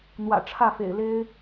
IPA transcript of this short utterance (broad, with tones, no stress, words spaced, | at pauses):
n̪wä̰˨˩ʈ͡ʂʰä˥˩fḛ˨˩ɪ̯le˥ɪ̯